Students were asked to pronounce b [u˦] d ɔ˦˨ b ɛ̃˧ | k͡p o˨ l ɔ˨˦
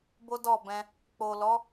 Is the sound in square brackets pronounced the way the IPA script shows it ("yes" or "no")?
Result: no